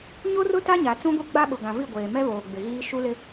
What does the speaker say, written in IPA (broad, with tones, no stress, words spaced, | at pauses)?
ɲo˦rʊ˦ ta˦ɲa˨t͡sũ˦ɡʷi˦ ɡ͡ba˦ɓʊ˨ ɡã˨vi˦˨ ɡʷeː˨ mɛ˦βoː˨ ɡ͡bɪ˨ɣiː˦ ʃu˦lɪ˦